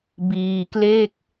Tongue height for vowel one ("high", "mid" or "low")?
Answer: high